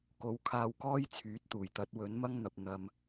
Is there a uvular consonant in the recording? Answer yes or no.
no